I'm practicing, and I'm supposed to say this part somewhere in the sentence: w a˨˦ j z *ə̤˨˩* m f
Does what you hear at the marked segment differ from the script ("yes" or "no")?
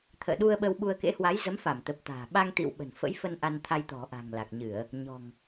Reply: yes